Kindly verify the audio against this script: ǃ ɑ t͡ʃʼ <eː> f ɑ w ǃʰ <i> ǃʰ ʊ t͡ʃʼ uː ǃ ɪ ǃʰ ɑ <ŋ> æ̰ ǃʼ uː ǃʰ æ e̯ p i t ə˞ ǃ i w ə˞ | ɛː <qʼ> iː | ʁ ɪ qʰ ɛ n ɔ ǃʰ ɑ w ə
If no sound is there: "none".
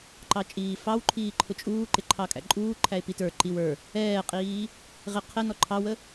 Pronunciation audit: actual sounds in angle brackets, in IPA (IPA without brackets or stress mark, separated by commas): iː, iː, kʼ, qʼ